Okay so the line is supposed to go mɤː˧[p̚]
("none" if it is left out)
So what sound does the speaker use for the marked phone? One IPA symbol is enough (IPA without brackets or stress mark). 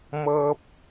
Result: p̚